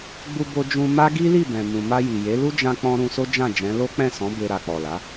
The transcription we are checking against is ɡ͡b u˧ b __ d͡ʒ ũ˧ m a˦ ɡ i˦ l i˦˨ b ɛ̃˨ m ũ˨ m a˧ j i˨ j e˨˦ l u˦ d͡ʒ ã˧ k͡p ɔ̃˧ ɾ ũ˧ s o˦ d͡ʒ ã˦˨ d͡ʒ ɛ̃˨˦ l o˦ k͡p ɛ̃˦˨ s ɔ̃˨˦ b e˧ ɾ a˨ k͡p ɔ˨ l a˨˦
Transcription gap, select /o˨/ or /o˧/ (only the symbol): o˧